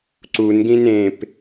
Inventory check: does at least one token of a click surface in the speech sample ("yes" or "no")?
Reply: yes